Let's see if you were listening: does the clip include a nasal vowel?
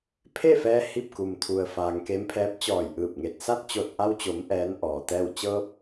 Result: no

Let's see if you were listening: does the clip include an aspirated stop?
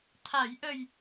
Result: yes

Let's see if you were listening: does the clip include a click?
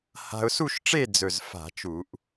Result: no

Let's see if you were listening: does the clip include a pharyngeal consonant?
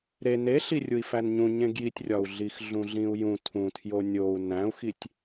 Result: no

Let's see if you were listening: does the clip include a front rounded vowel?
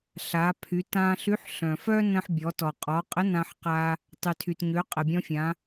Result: yes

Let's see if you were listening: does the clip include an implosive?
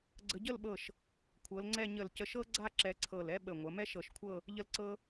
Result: yes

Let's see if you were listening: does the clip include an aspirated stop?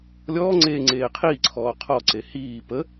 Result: yes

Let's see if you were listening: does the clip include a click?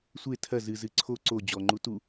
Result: yes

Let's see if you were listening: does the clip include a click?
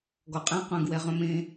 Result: no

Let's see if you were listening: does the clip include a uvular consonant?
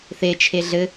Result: no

